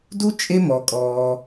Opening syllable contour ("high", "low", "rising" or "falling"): high